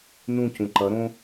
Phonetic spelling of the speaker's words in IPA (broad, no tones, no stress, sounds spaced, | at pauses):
n ũ c ũ ǃ ʌ ɾ õ